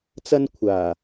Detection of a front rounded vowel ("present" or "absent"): absent